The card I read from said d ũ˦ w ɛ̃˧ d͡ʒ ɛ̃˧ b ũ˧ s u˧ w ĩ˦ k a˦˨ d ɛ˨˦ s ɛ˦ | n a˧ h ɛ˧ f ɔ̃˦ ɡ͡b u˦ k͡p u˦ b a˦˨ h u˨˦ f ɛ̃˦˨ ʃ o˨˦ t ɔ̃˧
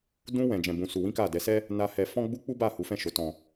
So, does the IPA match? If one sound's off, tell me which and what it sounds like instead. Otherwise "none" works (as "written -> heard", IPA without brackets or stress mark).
none